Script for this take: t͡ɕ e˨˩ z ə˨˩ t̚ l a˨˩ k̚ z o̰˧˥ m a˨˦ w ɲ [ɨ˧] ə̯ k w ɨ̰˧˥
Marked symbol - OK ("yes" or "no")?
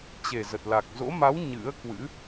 no